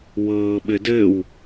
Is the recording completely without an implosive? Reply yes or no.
no